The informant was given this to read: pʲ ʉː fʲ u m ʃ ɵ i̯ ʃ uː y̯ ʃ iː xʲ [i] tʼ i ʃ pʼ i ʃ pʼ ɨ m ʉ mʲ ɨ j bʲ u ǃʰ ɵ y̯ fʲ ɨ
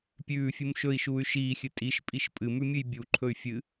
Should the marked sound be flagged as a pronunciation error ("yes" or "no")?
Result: yes